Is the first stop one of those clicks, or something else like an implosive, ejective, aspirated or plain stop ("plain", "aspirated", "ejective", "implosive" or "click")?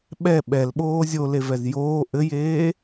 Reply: implosive